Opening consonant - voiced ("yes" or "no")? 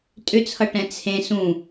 no